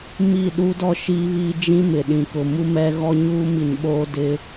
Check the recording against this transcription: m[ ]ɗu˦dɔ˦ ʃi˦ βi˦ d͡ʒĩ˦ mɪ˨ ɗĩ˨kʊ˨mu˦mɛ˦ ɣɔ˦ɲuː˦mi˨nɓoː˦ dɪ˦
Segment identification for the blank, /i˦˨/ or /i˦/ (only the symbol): i˦˨